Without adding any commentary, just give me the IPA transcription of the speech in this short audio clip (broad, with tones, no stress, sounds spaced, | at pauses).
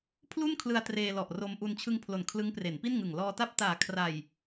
pʰ l u˥˩ n kʰ l ɯ˧ a̯ t r eː˧ l ɔ˨˩ ʔ r o˧ m ʔ u˧ n t͡ɕʰ ɯ˧ ŋ pʰ l o˨˩ n kʰ l ɯ˦˥ ŋ p r e˩˦ n p i˥˩ n ŋ ɯ˨˩ ŋ l ɔː˧ t a˥˩ p̚ t aː˨˩ kʰ r a˨˩ j